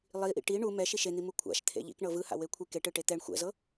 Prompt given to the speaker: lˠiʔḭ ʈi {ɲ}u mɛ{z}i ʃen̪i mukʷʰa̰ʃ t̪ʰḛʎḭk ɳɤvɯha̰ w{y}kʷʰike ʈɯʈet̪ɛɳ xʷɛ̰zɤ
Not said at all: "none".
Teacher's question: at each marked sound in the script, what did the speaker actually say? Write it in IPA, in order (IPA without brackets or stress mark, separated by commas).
ɳ, ʃ, e